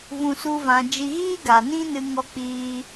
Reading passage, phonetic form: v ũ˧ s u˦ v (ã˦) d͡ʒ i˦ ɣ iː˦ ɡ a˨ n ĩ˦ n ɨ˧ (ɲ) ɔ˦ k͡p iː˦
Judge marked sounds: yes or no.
no, no

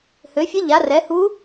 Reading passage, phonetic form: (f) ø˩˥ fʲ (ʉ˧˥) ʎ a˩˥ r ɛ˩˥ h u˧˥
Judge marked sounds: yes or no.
no, no

